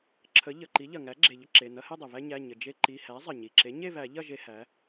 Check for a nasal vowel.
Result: absent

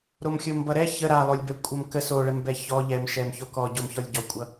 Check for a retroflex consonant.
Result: present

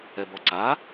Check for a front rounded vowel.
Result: absent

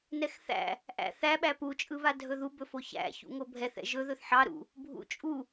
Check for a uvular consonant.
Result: absent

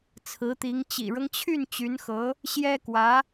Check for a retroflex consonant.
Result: present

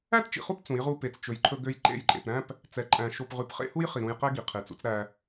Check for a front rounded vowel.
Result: present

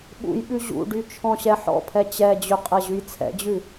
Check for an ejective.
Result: present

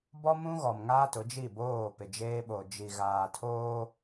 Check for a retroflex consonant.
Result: absent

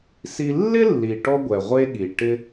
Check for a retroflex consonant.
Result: present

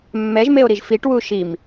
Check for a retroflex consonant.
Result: present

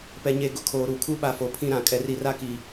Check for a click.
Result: absent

